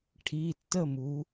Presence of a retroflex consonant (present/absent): present